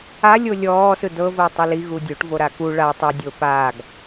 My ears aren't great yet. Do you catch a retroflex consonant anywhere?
yes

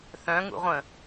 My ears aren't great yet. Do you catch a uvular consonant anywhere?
yes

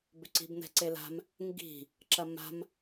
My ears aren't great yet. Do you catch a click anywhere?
yes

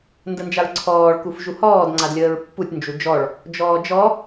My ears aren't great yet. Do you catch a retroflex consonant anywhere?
yes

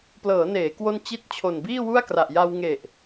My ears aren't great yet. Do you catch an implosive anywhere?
no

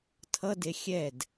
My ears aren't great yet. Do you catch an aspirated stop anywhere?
yes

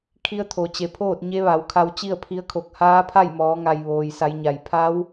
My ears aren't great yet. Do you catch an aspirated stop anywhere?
yes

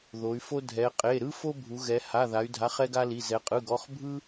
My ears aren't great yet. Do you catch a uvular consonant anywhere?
yes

